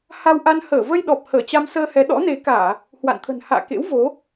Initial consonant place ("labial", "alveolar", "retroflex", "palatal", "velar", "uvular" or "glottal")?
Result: glottal